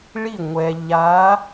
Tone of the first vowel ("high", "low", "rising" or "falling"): falling